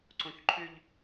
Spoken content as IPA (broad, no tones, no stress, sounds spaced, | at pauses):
ǀ õ ç ǃʰ ʏ ʎ